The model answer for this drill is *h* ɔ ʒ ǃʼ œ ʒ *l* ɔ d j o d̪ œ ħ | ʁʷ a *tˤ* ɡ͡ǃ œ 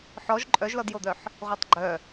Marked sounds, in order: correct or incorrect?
incorrect: ħ, correct, correct

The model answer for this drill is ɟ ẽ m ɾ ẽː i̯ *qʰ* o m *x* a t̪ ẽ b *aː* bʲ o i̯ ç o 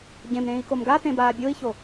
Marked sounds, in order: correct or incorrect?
incorrect: k, incorrect: ɡ, correct

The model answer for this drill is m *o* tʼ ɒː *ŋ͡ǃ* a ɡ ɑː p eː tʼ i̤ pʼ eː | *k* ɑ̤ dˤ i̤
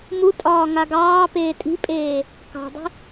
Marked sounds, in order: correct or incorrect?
incorrect: u, incorrect: ŋ, correct

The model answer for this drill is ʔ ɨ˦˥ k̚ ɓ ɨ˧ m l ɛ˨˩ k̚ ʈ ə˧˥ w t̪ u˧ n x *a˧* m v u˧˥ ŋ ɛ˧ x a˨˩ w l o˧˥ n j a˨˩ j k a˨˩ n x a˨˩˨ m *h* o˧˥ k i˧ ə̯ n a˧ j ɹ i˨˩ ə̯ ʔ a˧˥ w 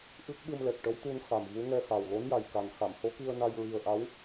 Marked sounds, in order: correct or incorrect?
incorrect: a˨˩, correct

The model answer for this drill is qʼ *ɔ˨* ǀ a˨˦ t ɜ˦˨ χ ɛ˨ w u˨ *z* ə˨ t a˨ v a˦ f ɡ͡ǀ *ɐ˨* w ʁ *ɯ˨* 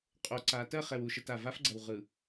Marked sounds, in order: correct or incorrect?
incorrect: o˨, incorrect: ʃ, correct, correct

